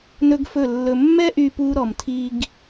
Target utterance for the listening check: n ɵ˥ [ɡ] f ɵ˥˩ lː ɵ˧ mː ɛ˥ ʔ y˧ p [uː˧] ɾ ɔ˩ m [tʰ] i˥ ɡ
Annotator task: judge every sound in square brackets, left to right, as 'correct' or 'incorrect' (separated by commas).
correct, incorrect, correct